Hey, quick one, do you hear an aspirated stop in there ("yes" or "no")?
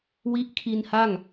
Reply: yes